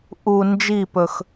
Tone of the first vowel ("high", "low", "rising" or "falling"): low